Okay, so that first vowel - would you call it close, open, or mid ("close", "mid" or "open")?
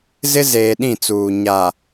close